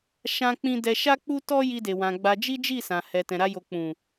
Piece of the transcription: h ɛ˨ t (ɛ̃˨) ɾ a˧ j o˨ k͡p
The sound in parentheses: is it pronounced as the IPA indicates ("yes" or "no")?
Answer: yes